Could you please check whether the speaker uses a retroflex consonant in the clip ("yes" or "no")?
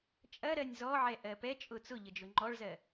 yes